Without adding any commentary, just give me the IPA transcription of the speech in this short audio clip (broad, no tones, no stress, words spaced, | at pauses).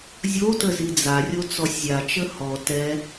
zʲotə zid͡zarʲo t͡sɔsʲzʲat͡ʃə hɔ tɛ